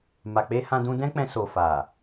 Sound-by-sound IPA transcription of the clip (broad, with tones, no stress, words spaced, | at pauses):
ma˨k͡pe˧hã˧ dũ˧dɛ̃˦k͡pɛ̃˧so˨ fa˨